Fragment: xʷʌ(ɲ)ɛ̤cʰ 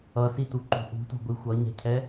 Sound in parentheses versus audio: correct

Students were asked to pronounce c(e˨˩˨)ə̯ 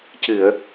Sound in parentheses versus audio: incorrect: ɨ˨˩˨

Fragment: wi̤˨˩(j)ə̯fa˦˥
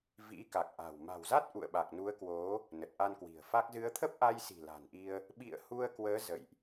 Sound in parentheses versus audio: incorrect: none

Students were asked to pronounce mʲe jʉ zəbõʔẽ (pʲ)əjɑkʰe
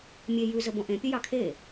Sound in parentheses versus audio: correct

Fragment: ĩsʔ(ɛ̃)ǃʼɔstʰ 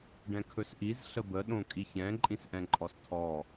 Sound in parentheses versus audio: correct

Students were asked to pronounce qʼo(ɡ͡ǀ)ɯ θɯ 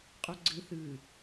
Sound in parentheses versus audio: correct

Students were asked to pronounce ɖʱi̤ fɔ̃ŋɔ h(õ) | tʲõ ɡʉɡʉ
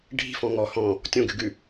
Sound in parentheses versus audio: incorrect: ɔ̃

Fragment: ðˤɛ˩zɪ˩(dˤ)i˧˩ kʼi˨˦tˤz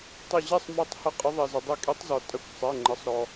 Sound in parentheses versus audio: correct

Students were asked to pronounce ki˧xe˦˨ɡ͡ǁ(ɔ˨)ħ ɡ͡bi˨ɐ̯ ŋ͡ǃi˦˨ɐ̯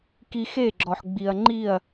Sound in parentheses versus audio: correct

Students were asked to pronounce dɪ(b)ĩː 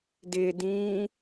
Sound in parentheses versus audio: incorrect: d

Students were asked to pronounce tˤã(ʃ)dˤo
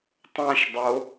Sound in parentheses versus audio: correct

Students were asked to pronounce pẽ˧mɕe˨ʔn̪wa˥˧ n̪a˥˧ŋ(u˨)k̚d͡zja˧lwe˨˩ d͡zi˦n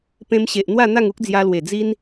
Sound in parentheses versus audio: incorrect: u˦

